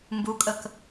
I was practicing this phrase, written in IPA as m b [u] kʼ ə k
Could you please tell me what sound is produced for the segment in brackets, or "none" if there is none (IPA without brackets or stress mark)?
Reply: u